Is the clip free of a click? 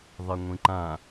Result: no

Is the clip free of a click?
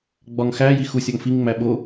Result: yes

